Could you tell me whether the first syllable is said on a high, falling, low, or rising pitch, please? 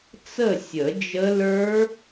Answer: falling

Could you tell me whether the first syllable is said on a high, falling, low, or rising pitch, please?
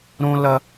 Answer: high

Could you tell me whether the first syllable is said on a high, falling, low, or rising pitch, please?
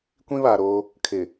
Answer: high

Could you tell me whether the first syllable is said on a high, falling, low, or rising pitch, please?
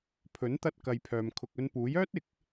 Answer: rising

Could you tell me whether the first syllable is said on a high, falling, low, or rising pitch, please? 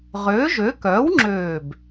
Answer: rising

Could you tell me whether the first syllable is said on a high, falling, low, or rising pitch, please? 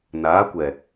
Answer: rising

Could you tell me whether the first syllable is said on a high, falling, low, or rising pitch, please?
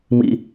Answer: high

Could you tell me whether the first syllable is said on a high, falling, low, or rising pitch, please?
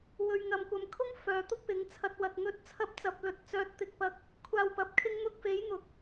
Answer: low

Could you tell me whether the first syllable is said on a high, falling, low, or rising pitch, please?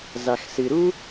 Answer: low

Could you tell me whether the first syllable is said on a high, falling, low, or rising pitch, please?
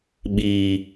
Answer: low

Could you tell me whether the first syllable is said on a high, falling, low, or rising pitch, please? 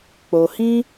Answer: low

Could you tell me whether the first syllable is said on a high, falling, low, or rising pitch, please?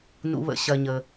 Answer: low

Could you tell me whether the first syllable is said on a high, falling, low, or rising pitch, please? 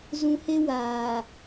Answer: low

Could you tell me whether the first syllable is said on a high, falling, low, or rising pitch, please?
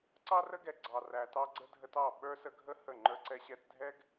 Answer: high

